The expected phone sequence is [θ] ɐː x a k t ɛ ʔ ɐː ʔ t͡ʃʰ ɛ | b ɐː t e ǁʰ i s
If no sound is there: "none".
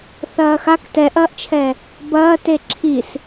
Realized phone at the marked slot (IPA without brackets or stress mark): θ